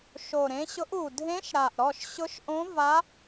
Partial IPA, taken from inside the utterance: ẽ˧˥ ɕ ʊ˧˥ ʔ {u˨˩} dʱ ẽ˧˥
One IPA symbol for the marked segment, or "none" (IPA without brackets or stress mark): u˨˩